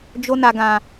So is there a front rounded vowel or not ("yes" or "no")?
no